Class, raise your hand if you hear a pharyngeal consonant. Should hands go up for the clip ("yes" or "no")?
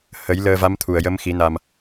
no